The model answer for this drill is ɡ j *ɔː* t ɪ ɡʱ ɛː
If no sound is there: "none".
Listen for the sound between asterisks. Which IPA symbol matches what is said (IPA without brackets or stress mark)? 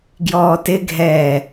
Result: ɔː